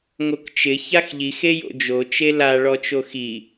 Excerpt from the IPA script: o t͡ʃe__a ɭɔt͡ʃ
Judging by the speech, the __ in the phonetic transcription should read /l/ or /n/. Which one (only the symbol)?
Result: l